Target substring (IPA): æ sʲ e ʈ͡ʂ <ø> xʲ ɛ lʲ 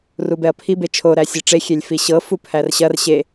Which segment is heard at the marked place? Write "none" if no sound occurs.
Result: e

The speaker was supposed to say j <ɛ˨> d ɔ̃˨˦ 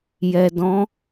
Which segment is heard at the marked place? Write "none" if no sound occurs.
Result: ɛ˨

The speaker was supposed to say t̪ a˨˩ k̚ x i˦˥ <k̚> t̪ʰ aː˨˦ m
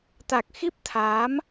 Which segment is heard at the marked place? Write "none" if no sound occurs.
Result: p̚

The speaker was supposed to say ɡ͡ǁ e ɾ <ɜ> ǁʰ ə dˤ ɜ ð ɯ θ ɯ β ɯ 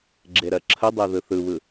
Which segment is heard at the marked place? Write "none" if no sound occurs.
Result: ɜ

